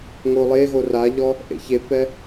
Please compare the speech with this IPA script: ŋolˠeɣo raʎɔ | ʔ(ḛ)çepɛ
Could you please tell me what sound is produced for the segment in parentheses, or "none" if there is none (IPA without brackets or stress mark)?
ḛ